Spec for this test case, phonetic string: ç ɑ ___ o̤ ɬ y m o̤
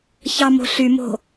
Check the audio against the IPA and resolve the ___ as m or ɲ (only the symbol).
m